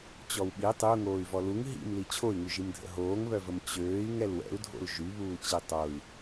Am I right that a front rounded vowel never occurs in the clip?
no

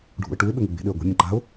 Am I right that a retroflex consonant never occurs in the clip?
no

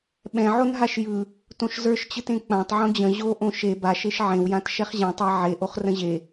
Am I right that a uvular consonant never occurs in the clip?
no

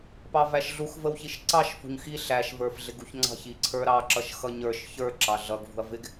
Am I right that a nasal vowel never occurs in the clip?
yes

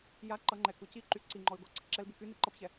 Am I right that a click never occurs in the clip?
no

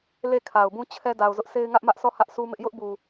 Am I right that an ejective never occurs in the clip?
yes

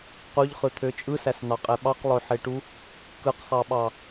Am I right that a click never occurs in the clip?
yes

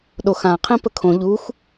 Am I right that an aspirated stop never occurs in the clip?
no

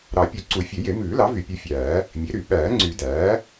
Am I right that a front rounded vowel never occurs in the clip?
no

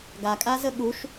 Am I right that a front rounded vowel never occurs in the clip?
yes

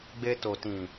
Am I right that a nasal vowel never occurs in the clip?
no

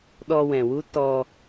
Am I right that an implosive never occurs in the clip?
no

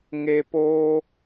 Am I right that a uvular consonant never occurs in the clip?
yes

